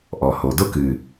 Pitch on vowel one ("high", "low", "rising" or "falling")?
low